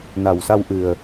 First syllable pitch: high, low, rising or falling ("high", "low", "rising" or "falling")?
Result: low